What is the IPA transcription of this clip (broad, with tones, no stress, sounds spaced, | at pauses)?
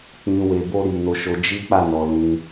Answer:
k͡p ĩ˨ w e˨ b o˧ ɾ i˨ n o˨˦ ʃ o˧ d͡ʒ i˦ k͡p a˦˨ n ɔ˨ l ĩ˧